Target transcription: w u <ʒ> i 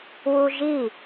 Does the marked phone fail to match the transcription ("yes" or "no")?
no